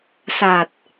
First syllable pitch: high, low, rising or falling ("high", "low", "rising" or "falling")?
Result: low